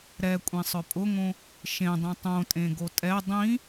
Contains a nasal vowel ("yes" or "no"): yes